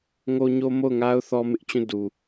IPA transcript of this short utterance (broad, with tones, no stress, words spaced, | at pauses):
ŋo˦ɲo˦ mo˦˨ʊ̯ŋa˦ʊ̯ θɔ˦mɪ˦ʔt͡ɕũ˦˨ du˨